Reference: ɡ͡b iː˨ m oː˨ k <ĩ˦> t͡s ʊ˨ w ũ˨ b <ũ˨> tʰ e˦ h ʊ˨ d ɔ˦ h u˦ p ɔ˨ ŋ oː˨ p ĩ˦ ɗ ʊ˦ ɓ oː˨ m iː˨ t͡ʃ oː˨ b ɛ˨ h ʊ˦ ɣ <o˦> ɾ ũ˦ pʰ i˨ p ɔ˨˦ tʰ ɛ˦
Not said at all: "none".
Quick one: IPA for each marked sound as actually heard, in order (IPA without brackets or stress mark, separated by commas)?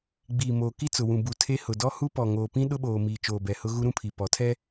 i˦, u˨, u˦